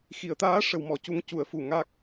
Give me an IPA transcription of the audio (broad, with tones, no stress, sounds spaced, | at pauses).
x i˨˩˨ ə̯ t̪ aː˧˥ ʂ ə˨˩˦ w m ɔ˨˩ c u˧ ŋ c u˨˩˨ ə̯ f u˨˩ ŋ a˦˥ k̚